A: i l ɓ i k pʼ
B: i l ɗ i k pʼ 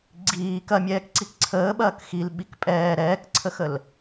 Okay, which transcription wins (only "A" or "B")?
A